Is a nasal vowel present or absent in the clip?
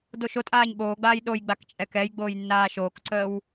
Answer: absent